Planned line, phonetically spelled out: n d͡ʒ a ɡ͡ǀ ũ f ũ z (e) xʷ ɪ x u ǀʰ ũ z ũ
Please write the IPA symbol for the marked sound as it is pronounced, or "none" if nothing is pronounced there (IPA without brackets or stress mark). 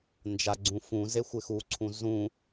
e